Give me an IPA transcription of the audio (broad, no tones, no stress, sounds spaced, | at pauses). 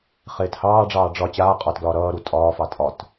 χ eː t h ɑː ɖ͡ʐ ɑː ɖ͡ʐ ɒ t͡ɕ aː qʼ ɒ t ɡ l ɒː ɾ ʌː ɾ u tʼ ɒː f ɑ tʼ ɒ t